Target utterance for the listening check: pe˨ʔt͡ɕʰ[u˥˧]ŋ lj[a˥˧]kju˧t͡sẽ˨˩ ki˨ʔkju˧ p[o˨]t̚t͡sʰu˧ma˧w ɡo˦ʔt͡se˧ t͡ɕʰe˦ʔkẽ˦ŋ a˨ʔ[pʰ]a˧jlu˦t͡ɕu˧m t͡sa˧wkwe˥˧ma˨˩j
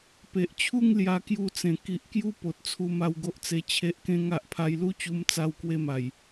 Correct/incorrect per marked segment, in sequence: correct, incorrect, correct, correct

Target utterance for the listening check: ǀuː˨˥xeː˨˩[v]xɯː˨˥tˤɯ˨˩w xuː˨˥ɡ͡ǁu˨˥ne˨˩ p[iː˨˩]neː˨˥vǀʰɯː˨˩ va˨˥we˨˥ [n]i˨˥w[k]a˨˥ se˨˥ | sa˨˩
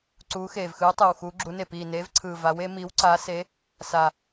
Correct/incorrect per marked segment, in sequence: correct, correct, incorrect, incorrect

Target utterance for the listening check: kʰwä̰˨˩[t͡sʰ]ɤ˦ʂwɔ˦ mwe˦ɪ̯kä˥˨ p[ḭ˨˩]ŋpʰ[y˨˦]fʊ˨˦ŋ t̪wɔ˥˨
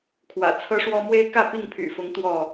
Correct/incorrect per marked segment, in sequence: correct, incorrect, incorrect

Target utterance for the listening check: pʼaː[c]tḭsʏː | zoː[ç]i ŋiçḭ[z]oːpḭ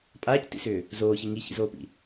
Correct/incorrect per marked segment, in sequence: correct, correct, correct

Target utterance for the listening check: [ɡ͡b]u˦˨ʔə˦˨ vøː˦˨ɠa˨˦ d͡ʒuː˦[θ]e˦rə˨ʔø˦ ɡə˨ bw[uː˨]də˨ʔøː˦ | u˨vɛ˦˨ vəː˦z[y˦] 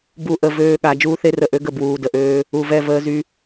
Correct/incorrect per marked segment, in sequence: incorrect, correct, correct, correct

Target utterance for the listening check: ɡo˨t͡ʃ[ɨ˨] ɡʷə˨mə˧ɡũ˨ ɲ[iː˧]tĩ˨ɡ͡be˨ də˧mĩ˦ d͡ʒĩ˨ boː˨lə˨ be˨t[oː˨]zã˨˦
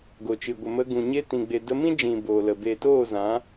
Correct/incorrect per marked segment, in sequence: correct, incorrect, incorrect

